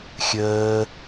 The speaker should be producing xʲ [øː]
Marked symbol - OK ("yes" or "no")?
no